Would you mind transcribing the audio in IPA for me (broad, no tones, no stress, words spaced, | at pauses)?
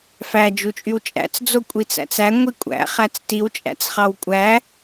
fæ d͡ʒut͡ʃʼywt͡ʃʼæ̰t͡s d͡zokʷʼit͡sæ̰t͡sæ ŋʷikʷʼæ̰ χæt͡stiw t͡ʃʼæ̰t͡sχɑwkʷʼæ